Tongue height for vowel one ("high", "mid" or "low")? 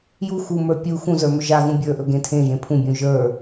high